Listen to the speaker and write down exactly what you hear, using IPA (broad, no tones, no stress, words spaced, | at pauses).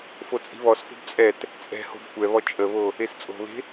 fot͡sʼi̤βɔsfo̤b t͡sʼɛt | t͡sʼɛ̤ho̤b kʷɛβɔ t͡ʃʼəβo | est͡sʼo̤βe̤